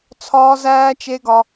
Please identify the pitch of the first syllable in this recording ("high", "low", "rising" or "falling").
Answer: high